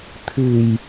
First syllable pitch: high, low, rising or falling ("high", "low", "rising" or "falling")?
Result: low